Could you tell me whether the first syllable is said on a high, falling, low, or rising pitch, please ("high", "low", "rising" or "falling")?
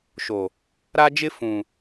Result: low